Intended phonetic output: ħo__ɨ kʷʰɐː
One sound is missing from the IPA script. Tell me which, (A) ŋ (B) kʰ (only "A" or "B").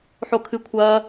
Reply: B